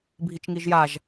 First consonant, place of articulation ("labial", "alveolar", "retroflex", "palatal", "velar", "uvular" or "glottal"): labial